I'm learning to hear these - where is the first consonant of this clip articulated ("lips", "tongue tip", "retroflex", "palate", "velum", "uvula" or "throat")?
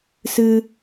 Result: tongue tip